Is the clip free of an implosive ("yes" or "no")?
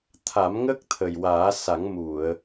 yes